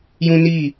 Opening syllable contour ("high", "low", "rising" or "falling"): high